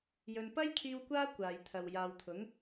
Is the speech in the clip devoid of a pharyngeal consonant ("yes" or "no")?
yes